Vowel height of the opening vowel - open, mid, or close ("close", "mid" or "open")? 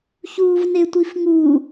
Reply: close